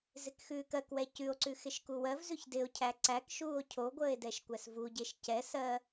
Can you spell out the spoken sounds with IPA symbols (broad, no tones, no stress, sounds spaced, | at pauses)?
z ɪ k x ʉː k ɜ k w ɛ c ʉ o̯ ǀ ʉ x ɪ ʃ k u w ɜ v z ʉ ç d ɪ o̯ cʰ æ ǀ æ k ʃ uː o̯ cʰ o ɡʷ əː e̯ d ɛ ʃ kʷ æ s v u ɟ e ʃ c ɛ s ɜ